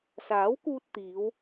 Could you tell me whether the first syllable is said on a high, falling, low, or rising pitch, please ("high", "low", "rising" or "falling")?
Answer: rising